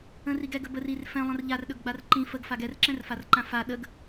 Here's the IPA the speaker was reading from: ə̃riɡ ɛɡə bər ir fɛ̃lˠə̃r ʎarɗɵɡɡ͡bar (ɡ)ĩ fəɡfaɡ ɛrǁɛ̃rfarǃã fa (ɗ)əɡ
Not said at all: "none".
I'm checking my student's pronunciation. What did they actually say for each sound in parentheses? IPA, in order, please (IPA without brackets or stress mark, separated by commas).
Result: ǃ, ɗ